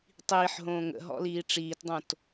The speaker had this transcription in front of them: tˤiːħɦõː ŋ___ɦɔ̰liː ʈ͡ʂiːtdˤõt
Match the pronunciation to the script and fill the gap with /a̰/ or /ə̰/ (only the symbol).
ə̰